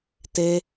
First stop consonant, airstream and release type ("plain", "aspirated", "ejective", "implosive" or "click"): plain